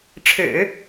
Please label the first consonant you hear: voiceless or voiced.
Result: voiceless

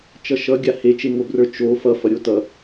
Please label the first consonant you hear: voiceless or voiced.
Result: voiceless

